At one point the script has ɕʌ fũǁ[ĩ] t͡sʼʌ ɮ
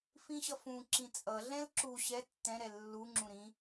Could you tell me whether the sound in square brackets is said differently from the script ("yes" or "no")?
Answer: no